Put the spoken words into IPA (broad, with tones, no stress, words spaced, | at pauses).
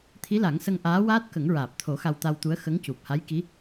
t̪ʰi˧˥la˨˩˦ŋsə˧ŋ ʔaː˧˥waː˦˥t̚kə˨˩˦ŋ ɹaː˨˩p̚t̪ʰo˨˩˦ xa˧wt̪a˧wt̪u˧˥ə̯ xə˧˥ŋcu˨˩p̚ ha˧˥jki˧˥